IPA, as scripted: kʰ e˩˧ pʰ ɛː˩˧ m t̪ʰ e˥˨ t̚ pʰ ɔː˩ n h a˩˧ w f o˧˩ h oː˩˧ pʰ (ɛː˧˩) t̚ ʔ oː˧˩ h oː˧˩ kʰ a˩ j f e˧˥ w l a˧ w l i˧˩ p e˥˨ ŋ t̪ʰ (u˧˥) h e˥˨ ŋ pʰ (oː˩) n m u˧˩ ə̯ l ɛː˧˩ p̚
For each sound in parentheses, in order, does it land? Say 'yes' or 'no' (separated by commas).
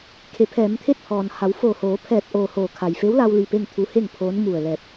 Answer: yes, yes, no